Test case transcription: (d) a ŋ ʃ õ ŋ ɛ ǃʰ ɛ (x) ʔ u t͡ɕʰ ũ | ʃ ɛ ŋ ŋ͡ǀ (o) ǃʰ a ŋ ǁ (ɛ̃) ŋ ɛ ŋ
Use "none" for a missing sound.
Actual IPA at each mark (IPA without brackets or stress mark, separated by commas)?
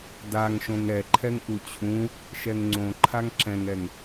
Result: d, ŋ, õ, ɛ̃